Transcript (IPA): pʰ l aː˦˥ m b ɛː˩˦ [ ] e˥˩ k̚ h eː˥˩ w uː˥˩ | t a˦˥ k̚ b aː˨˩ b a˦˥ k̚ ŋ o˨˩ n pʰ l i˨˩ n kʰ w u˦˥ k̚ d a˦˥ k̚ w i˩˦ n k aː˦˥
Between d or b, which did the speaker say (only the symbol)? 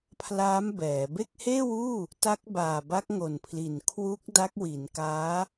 b